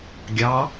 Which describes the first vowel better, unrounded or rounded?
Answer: unrounded